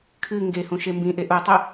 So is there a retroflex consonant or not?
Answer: no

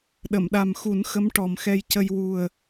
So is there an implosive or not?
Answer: yes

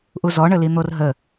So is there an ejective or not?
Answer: no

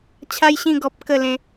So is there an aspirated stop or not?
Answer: yes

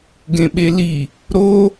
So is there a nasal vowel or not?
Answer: yes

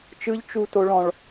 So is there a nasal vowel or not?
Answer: yes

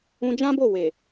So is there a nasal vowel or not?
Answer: yes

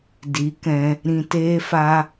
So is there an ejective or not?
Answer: no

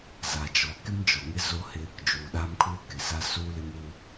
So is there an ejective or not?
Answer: no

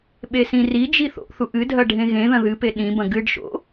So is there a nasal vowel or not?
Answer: yes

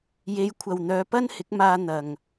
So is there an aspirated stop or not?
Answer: yes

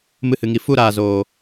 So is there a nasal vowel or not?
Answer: no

